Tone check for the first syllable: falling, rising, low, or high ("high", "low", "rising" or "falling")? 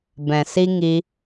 low